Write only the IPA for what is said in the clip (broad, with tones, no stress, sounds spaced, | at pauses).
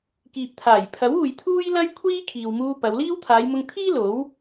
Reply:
k iː˨ p̚ t̪ʰ aː˨˩ j pʰ ɐ˨˥ w uː˨ j t̪ʰ uː˥ j l ɐ˥ j kʷʰ iː˥ kʰ iː˨ w m uː˧ p ɐ˨˧ w l iː˥ w t̪ʰ aː˨˧ j m ʊ˧ ŋ t̪ʰ iː˥ l o˨˥ w